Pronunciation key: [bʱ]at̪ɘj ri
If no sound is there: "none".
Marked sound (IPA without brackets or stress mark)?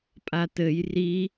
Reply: pʼ